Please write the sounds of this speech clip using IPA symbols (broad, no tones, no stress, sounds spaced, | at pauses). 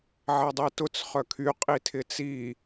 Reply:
ʕ ɛ dˤ i t ʊ t͡s χ œ kʰ y qʼ i tʰ ɪ t͡s i